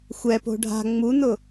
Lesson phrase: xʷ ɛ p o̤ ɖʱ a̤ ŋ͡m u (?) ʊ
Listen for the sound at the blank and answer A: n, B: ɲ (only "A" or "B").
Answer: A